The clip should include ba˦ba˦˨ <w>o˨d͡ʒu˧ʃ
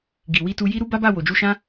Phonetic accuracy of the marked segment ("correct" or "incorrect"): correct